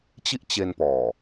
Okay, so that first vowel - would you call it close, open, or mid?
close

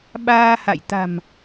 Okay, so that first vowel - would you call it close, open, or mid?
open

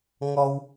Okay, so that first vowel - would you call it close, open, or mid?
mid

